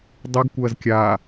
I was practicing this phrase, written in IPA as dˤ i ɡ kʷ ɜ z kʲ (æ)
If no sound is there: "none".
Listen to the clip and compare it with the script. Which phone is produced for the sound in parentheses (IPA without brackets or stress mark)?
a